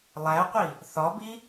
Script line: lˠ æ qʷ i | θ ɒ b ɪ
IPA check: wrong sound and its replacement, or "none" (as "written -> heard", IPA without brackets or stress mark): ɪ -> i